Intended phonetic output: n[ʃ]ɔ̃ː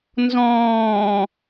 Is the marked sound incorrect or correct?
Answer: incorrect